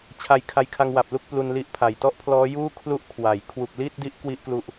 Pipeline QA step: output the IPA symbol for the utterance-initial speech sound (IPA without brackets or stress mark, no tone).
t͡ɕʰ